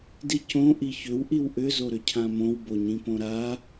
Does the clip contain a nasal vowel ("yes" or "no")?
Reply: yes